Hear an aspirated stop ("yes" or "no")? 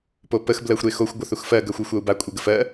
no